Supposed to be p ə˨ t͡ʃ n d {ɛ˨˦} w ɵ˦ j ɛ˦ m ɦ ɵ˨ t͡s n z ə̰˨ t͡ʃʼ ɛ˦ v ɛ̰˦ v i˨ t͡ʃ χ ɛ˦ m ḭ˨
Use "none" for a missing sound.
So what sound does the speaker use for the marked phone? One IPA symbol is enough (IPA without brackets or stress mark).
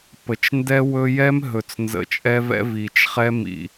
ɛ˦